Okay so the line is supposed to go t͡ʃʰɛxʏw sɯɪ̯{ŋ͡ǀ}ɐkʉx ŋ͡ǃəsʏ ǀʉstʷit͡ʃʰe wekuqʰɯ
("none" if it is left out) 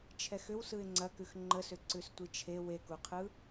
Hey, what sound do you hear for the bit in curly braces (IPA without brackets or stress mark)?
ŋ͡ǀ